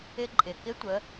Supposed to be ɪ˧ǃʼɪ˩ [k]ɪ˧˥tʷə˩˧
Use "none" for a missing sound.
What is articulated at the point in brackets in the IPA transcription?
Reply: k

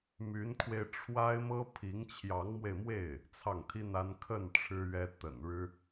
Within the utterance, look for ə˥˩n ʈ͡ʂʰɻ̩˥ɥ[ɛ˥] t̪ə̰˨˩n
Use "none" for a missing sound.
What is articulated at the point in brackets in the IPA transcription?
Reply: ɛ˥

